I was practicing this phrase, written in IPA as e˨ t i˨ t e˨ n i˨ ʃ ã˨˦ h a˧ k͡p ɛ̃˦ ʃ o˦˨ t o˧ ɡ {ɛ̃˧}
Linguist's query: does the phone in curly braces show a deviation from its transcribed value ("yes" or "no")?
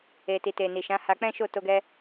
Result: yes